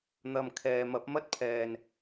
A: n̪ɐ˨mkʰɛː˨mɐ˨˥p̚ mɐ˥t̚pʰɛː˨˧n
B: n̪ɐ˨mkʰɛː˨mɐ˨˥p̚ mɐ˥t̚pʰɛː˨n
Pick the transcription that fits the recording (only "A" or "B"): B